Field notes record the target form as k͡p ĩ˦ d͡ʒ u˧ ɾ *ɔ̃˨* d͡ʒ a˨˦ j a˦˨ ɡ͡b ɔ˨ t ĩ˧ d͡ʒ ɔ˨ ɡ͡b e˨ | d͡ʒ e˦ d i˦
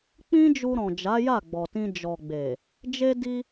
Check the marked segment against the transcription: correct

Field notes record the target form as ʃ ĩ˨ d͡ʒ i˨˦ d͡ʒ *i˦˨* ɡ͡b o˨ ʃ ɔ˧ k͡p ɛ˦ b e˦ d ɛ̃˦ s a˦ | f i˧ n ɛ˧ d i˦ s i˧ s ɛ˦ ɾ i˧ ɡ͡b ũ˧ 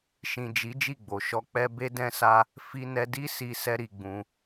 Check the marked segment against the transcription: correct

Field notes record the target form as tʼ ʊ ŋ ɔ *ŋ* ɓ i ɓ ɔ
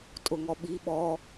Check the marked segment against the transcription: incorrect: none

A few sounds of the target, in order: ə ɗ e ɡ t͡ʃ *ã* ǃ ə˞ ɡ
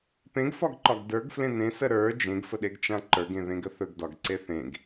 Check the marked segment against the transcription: correct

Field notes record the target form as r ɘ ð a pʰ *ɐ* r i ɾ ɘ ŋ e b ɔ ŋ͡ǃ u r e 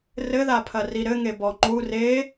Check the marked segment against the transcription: correct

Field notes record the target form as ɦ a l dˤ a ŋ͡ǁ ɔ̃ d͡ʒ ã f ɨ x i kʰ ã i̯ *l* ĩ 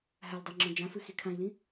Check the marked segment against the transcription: correct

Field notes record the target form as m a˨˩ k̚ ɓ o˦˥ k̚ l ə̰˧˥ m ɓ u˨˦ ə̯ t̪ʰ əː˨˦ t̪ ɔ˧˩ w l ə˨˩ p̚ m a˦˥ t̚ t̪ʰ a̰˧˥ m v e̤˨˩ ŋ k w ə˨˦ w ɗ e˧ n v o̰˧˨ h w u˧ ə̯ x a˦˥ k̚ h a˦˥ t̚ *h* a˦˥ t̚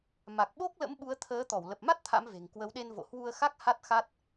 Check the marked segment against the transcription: incorrect: x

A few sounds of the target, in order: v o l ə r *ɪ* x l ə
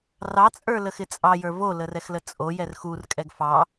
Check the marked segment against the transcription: incorrect: ɛ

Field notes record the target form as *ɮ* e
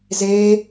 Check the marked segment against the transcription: incorrect: z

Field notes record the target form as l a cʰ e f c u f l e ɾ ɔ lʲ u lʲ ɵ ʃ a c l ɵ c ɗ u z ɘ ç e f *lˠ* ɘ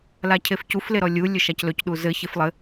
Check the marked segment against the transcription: correct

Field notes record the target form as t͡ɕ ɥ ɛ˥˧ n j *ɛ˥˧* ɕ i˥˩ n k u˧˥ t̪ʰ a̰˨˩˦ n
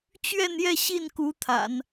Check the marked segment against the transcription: correct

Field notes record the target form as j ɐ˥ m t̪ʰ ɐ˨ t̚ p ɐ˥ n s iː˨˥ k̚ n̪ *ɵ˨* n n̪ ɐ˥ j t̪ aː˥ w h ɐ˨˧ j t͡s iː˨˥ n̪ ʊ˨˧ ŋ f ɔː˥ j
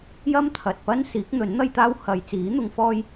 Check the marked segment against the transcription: incorrect: ɵ˨˥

